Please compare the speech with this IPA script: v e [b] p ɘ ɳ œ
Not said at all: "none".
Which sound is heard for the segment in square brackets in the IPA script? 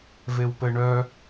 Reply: w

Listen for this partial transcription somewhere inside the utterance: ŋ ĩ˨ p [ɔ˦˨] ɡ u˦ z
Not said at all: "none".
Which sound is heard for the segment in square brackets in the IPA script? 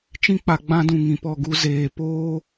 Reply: ɔ˦˨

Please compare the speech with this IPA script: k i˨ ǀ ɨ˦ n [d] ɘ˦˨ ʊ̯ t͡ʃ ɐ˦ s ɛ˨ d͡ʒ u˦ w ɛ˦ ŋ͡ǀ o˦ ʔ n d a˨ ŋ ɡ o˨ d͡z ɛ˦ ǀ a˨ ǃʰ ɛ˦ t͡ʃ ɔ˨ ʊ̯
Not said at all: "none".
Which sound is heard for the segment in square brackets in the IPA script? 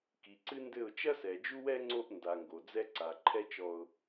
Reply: d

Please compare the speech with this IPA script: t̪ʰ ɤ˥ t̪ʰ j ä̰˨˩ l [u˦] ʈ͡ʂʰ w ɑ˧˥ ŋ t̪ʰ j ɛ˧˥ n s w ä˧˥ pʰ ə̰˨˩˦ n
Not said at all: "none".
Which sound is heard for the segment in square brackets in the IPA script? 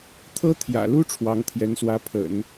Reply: u˥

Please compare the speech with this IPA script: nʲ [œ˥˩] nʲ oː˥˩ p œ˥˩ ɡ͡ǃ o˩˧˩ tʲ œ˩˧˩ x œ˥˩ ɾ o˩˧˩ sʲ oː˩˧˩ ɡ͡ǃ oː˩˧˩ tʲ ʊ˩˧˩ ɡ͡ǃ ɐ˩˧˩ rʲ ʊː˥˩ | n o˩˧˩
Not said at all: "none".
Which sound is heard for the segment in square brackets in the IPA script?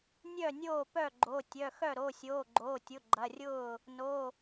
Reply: œ˥˩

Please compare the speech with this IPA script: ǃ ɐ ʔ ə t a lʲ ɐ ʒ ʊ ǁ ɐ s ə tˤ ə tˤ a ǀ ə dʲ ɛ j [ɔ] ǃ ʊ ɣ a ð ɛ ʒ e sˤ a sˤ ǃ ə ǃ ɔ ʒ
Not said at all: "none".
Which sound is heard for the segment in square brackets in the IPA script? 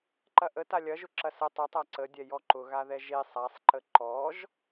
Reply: ɔ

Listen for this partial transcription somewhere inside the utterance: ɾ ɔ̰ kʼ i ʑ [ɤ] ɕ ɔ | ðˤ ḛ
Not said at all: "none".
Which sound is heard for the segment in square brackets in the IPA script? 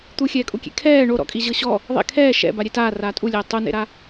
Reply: ɤ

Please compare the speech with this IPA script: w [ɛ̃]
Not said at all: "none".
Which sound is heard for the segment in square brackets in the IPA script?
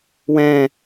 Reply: ɛ̃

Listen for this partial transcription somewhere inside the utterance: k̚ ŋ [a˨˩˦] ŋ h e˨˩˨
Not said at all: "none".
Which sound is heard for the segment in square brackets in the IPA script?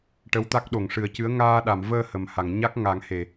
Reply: a˨˩˦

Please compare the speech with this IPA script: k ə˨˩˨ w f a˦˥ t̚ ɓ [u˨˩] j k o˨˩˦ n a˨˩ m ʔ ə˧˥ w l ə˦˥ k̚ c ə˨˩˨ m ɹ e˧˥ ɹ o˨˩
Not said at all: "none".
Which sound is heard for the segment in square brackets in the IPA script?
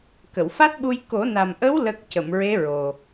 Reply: u˧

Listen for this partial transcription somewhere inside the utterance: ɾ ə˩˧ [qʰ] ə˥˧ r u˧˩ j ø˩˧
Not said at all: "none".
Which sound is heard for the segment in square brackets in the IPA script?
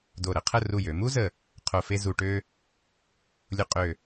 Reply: qʰ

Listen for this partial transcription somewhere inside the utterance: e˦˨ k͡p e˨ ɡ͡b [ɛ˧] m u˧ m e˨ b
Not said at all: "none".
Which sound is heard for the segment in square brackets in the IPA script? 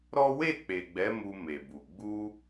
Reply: ɛ˨˦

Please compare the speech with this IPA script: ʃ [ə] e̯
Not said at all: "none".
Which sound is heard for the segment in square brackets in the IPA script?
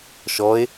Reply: ɔ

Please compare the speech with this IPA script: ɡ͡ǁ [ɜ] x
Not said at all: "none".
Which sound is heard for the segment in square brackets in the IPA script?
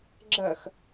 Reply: ɜ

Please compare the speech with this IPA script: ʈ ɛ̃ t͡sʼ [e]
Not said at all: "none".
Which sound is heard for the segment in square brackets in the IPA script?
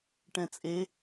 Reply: e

